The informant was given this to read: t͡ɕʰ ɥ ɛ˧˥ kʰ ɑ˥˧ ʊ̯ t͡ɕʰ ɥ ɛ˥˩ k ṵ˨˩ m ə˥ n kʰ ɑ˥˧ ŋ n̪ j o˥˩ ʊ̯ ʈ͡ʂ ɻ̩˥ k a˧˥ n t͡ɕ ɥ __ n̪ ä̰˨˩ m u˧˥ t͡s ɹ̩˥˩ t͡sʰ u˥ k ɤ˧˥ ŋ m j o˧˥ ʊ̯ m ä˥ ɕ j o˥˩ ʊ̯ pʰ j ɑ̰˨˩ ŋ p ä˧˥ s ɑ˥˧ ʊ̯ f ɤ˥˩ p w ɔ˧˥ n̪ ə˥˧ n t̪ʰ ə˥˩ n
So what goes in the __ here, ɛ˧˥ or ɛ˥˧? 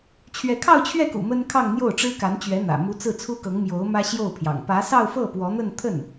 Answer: ɛ˧˥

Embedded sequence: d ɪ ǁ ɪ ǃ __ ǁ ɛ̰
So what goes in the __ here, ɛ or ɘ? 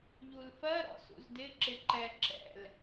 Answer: ɛ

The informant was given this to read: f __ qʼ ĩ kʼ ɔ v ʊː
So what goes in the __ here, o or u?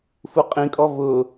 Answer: u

